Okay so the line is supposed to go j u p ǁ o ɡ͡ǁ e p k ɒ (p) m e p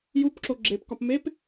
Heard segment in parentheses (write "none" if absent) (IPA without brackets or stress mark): p